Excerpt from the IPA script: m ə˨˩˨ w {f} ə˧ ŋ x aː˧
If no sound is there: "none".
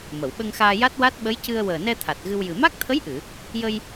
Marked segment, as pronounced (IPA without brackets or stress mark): ɓ